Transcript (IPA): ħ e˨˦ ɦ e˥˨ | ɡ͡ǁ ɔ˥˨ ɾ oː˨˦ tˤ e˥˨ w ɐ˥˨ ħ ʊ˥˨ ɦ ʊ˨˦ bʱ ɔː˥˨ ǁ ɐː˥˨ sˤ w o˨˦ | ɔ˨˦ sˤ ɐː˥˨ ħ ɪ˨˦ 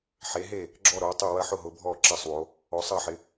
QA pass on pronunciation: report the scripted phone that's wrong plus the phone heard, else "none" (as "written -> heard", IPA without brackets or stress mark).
none